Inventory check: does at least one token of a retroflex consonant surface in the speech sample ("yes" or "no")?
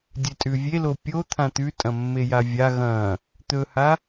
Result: no